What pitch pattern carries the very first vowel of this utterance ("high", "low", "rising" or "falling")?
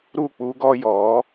falling